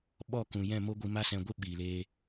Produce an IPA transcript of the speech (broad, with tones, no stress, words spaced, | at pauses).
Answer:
ɓɔ˦˨kũ˨jɛ̃˦˨mo˦ ɡʷi˧ma˦sɛ̃˧ɡʷɨ˦ ɓiː˨leː˧